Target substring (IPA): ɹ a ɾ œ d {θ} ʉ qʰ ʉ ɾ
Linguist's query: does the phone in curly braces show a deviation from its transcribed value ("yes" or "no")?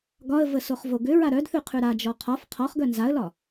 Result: no